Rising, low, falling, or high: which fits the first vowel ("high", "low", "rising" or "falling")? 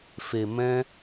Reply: low